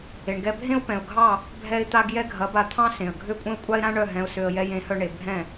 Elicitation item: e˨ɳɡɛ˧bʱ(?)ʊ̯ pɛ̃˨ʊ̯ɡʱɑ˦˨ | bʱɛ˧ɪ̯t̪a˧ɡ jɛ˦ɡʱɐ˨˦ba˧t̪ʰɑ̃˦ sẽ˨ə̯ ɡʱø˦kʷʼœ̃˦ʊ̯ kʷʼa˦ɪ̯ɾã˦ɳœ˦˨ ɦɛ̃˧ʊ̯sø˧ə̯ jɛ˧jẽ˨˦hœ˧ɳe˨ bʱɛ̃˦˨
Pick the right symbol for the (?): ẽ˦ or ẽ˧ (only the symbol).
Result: ẽ˦